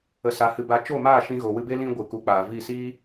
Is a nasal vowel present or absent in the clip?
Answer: present